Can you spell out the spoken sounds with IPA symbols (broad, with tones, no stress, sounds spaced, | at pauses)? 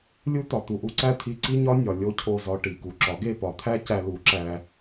lʲ u˦ t̪ ɒ˨ t̪ u˨ ʔ u˦ ǀ æ˦ t̪ʰ i˧ ǀ i˦ ɲ ɒ˦ nʲ ɒ˨ lʲ o˦ cʰ o˦˨ z ɒ˧ ʈ i˨ k u˨ ǁ ɒ˨˦ ɡ e˦˨ p ɒ˨ t̪ʰ æ˦ c æ˧ l u˨˦ ǁ æ˧